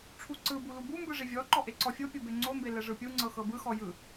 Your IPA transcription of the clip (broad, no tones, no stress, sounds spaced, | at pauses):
ʈ͡ʂʰ u ǀ ɯ b u l u b u m b ɯ ʐ i vʲ ɔ ǃ ɔ ʔ e ǀ ɔ fʲ o pʲ o b e ŋ͡ǀ o m b e l ɛ ʐ ɯ pʲ u ŋ͡ǀ ɤ x ɤ b ɯ x ɔ j ɯ